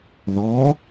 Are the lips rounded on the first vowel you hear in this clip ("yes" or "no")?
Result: yes